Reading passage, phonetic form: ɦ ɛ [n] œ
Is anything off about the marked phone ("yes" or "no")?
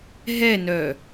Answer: no